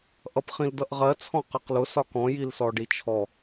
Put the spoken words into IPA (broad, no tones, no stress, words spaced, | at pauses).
ʔʌpχĩldʌʔʁɜ t͡sʰɔ̃qɜqlʊ sɒkɔ̃ jilsɔɖit͡ʃʰɔ